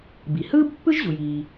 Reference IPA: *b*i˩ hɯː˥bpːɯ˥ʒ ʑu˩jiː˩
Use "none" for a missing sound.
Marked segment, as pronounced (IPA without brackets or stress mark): b